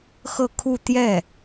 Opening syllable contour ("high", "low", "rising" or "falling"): falling